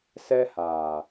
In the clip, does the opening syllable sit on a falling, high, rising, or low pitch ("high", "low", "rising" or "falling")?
high